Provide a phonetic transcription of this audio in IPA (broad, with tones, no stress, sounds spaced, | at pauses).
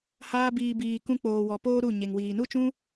h aː˦ b iː˧ b iː˧ k ũ˦ k͡p oː˧ w ɔ˧ p oː˦ ɾ u˦˨ ɲ e˨ ŋ w iː˨ n u˦ t͡ʃ ũ˦